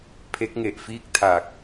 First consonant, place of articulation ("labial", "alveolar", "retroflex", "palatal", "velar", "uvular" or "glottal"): labial